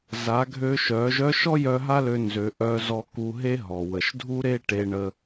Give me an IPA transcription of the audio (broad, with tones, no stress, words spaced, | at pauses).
za˩˧ɡʱø˧ʃœ˩˧ ʒœ˧˥ʃɔ˥jœ˧ ɦa˥lø˧nzø˩˧ ʔœ˧zɔ˧ ku˧ɦe˥ɦɔ˩ wə˩ʃdʱu˥ɾe˥ ʈe˧ɳə˧